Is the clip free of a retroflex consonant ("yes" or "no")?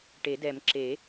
no